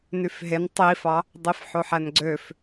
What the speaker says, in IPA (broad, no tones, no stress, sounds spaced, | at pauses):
n y f ɦ e n tˤ i f ɑ | dˤ i f ħ o ħ æ n ɡ͡ǀ ø f